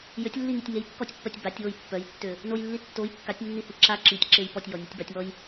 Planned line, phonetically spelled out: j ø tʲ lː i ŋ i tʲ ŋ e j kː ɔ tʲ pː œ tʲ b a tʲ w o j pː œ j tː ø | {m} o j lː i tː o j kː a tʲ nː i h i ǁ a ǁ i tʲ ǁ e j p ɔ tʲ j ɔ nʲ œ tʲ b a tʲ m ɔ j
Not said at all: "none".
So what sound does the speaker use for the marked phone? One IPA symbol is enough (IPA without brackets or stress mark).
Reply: n